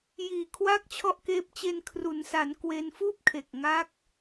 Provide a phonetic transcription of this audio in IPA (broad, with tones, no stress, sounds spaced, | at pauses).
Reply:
j iː˨˩ kʰ w aː˥˩ k̚ t͡ɕʰ ɔ˥˩ ʔ k eː˦˥ p̚ t͡ɕ e˧ n kʰ r u˩˦ n s a˩˦ n k w e˧ n f uː˥˩ p̚ kʰ e˨˩ k̚ ŋ a˦˥ k̚